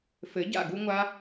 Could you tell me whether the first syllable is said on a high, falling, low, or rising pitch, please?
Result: rising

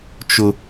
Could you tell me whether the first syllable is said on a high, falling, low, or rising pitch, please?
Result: high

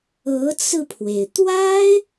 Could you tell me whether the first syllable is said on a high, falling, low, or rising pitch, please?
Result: rising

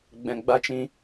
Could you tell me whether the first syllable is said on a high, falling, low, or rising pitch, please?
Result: low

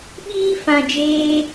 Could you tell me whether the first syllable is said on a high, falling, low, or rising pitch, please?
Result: high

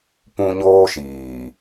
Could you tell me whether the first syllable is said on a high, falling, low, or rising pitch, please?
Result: high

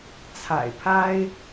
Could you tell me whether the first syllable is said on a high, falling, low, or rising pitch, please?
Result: low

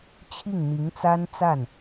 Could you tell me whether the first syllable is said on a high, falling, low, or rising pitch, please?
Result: falling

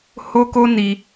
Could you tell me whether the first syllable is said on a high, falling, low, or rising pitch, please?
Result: high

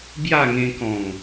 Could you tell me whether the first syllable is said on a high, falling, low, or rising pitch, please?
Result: falling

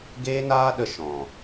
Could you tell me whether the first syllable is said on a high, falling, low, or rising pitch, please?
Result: high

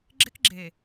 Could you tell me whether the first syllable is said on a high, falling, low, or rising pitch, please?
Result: high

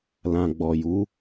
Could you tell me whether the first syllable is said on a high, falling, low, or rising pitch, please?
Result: low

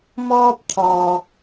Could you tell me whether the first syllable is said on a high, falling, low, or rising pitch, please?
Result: high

